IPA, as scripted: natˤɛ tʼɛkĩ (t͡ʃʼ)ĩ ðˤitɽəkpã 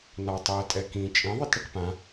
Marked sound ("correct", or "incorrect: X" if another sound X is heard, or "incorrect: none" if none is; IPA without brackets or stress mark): correct